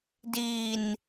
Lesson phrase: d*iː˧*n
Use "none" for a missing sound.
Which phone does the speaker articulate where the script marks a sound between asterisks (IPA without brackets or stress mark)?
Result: iː˧